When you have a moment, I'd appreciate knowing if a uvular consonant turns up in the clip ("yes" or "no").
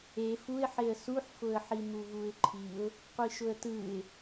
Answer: yes